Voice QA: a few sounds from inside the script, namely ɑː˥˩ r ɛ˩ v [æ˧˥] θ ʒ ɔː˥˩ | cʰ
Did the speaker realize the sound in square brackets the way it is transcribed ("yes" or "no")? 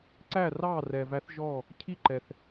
yes